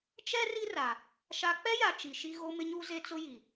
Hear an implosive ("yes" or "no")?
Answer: no